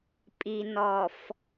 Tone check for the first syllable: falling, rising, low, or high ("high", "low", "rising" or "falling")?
low